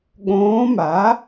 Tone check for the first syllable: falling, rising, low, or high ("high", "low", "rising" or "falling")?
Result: rising